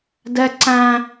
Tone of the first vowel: high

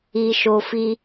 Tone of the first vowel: high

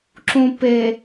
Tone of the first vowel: low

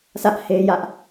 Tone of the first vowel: high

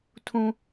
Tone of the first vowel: high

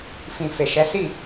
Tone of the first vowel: low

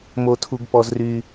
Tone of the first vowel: high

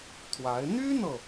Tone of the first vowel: rising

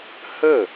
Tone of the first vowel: falling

